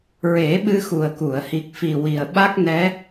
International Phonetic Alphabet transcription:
ɹ e˨˩˦ ɓ ɨ˧ x u˨˩ ə̯ k u˨˩˨ ə̯ h i˨˩ k̚ f i˨˩ w i˨˩ ə̯ ɓ a˦˥ k̚ n ɛ˧˥

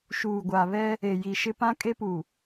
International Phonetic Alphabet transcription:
ʃ uː˨ ɡʷ a˨ β ɛ˦ | e˨ j i˨ ʃ ɪ˦ p ã˦ kʼ e˦ p u˨

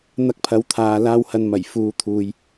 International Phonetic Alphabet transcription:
n̪ ɐ˧ k̚ pʰ ɐ˨˧ w t̪ʰ aː˨ l aː˧ w h ɐ˨ n m ɐ˨˩ j f uː˨ t̪ʰ uː˨ j

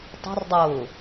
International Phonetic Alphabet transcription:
tˤ ɛ̤ r dˤ ʊː

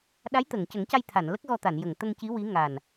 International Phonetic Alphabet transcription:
ɗ a˧˥ j t̪ ə˨˩˨ ŋ c ə˨˩˦ ŋ c a˧ j t̪ʰ a˨˩˨ n l ə˦˥ k̚ ɣ ɔ˧ t̪ a˨˩˨ n j ə˨˩˨ ŋ t̪ ə˧ ŋ c i˧˥ w i˧˥ ŋ a˨˩ n

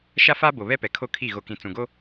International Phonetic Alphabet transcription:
ʃ a˦ f aː˦ b o˨ β ɛ˦ p ɛ˨ kʰ o˦ kʰ i˦˨ ɣ o˨ k ĩ˨ t͡s ũ˨ ɡ o˦

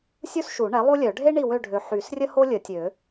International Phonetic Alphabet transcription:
sʲ u˥ s ʃ u˨˩˦ ɳ ɛ˩˥ lˠ u˥ lʲ œ˨˩˦ ɖʱ e˥ ɳ i˦˨ w ø˦˨ ɖʱ ø˨ ħ y˨˩˦ s rʲ ə˥ h o˥ lʲ ə˨˩˦ tʲ ø˨˩˦

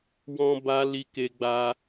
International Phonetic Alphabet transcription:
w ɔ̃˧ b a˧ l i˦ k e˦ ɡ͡b a˦

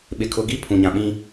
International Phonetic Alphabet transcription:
ɓ ɪ˨ kʰ ʊ˨ ɡ i˦ pʰ ũ˨ ɲ ã˨ ɓ ĩ˦

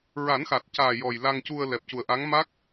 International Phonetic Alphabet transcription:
ɹ a˨˩˦ n x a˨˩ t̚ c aː˨˩ j ɔ˨˩ j l a˧ ŋ c u˧ ə̯ l ɛ˨˩ p̚ c u˨˩ ə̯ ʔ a˧˥ ŋ m a˦˥ k̚

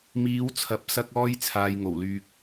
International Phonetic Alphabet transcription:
m iː˨˧ w t͡sʰ ɐ˨˥ p̚ s ɐ˥ k̚ ɔː˥ j t͡sʰ aː˧ j ŋ o˨˩ w l yː˨ k̚

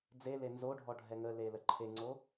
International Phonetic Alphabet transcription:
d͡z e l e n z o ɖʱ ɔ ɖʱ ɛ ŋ ə l e l ə ǃʰ e ŋ͡ǀ o

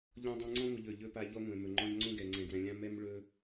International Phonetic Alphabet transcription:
ʎ ɔ̃˦ dˤ ɛ̃˦ ŋ͡ǀ ɔ̃˦ ŋʷ ɯ˨ ʎ ɵ˨ ʎ ɵ˦ p a˦ ʎ ɔ˦ ŋʷ ɛ̃˨ m ɵ˨ ŋ͡ǃ ɔ̃˦ ʎ ŋ͡ǀ õ˦ ɡ ɛ˨ ŋ͡ǀ ɛ̃˨ ɡ w ɛ̃˨ lʲ ã˦ m ɛ˦ m ɭ ɵ˦

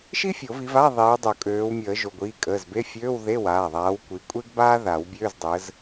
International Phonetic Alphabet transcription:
ʃ i˥ fʲ o˨˩˦ v i˨˦ v a˧˥˧ ðˤ iː˨˦ w dˤ o˨˩˦ kʼ øː˨˦ w mʲ əː˨˩˦ ʒ o˩˧˩ ɡʷ iː˩˧˩ kʼ əː˩˧˩ z b e˧˥˧ fʲ øː˧˥˧ w ð e˧˥˧ w aː˩˧˩ ðˤ aː˨˦ w kʷ i˨˦ kʷʼ e˥ ɡ b aː˥ ð a˨˩˦ w bʲ øː˧˥˧ z dˤ əː˨˦ z

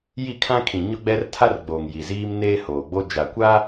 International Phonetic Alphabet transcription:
j i˦˨ kʰ ã˦ kʰ ĩ˨ ɲ ʊ˦ ɡ͡b ɛ˦ r tʰ a˦ r ɡ͡b oː˨ ŋ j i˨ z iː˦ m n eː˦ h oː˨ ɡ͡b o˦ d͡ʒ a˨ kʷ a˦

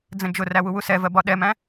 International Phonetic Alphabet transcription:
d͡z ə̃ d͡ʒ ʊ r æ w u w u s ɛ v ɜ b ɒ ɗ ɛ m æ̃

